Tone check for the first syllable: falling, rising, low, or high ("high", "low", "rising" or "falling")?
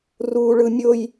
high